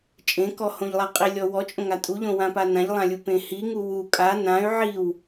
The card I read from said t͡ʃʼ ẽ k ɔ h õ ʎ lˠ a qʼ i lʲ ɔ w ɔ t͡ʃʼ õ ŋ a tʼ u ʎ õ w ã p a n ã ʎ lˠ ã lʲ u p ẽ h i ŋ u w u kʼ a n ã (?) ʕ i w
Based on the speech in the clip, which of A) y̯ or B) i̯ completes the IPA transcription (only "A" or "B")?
A